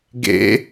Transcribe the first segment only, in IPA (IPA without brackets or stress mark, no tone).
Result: ɡ